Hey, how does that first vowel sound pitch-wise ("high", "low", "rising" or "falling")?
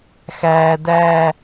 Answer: low